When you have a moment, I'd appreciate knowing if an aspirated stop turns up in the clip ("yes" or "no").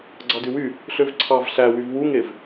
yes